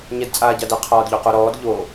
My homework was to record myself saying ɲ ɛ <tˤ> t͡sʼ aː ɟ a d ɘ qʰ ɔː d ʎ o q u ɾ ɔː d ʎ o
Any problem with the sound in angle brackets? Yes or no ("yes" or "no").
yes